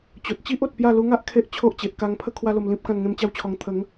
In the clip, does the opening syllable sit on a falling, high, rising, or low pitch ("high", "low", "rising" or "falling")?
low